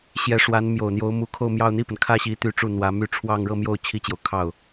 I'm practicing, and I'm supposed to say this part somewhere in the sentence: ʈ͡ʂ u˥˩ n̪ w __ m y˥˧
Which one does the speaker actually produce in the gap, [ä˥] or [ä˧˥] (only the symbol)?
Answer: ä˧˥